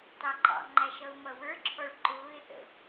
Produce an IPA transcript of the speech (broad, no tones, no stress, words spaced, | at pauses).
tɑǃɑ̰ŋ͡ǃæ ʃʌʊ̯mʌwə˞ǁʰɔɭ ǃʊːɪ̯θə̰